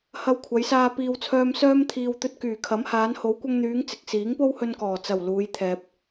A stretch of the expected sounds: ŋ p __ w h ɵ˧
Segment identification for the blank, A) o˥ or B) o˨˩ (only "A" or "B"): A